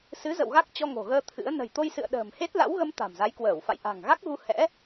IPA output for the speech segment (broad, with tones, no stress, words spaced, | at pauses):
sɨ˨˦zə̰˧˨w ɣa˦˥k̚t͡ɕɔ˧ŋo̤˨˩ɣəː˧ t̪ʰɨ̰˧˥ə̯ nə̤˨˩jt̪o˧jsɨ̰˧˨ə̯ ɗə̤ː˨˩m he˦˥t̚la̰˧˥wɣə˧m t̪a̤˨˩mza˨˦jkwəː˧˩wfa̰˧˨j ʔa̤˨˩ŋɣa˦˥k̚ɣu˧hɛ̰˧˥